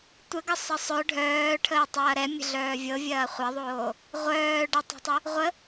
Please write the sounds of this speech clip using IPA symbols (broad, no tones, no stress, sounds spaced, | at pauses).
tʷ ə ɡ ə sˤ ɛ sˤ œ ɖʱ œː ʈʰ əː tˤ ɐː ɾ ɛ mʲ ə̤ ɮ œː vʲ ɤ vʲ ɐː χʷ ɐ ðˤ oː | ʁʷ œː ɖ ɐ tˤ ɛ̤ tˤ ə | ʁʷ ə